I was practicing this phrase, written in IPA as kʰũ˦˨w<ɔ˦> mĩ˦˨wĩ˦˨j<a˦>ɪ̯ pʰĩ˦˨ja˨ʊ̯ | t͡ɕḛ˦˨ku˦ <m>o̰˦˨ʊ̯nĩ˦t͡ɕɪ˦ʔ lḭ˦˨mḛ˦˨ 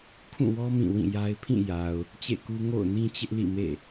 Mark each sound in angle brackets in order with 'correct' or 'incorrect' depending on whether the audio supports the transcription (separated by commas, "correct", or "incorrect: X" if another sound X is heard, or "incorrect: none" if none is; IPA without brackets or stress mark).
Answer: correct, correct, incorrect: ŋ